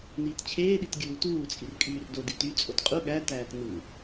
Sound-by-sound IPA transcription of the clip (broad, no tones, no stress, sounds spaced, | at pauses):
n iː t t͡ɕʰ eː ɗ i t ɡʲ uː t uː t͡sʼ i r kʼ yː r d o d i t y t͡sʼ o t qʼ u ɠ æ t æː t n u